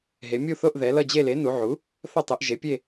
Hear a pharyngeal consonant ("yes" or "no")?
yes